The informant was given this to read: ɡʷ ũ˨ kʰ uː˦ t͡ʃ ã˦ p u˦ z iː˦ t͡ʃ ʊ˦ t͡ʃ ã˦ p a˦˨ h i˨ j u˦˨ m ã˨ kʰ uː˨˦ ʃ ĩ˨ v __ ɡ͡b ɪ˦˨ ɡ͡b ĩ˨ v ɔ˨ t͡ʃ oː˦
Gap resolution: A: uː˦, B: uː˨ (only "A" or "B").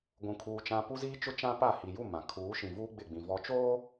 A